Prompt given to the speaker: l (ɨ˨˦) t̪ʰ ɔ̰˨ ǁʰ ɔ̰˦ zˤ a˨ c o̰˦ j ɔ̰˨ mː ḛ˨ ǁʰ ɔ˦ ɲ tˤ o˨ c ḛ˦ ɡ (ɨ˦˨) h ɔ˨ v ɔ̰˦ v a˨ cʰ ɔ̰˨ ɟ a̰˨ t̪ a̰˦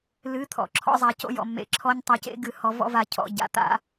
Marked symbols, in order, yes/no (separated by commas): yes, yes